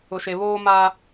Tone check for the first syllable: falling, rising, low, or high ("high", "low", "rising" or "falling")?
low